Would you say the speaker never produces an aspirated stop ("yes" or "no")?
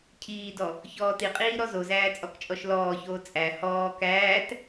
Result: no